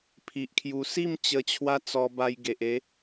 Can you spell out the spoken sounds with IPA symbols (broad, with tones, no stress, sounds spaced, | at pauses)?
pʰ i˨ ʔ kʰ j u˧ s i˥˧ m t͡ɕ ə˧ t͡ɕʰ w a˦ t͡s ɔ˧ b a˧ j ɡ e˨ ʔ e˨˦